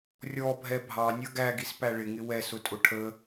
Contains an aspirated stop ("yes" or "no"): yes